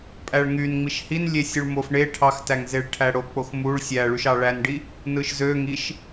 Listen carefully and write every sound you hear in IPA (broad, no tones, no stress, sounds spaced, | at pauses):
pʼ æ ɭ ŋ y n ŋ͡m i ʃ h i n lʲ e sʲ u ɭ m o f ɳ e ʈʰ ɑ x t æ ŋ z e ɭ ʈʰ æ ɽ o k͡p o x m u ɭ sʲ æ ɭ y ʃ ɑ ɭ æ n ɖ i | n ɯ ʃ z ø ŋ i ʃ